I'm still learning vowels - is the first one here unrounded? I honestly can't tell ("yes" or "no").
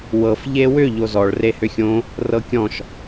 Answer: yes